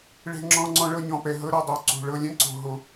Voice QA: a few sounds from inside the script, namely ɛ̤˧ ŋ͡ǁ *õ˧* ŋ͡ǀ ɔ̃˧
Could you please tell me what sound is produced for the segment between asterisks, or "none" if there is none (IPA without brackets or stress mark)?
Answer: ɔ̃˧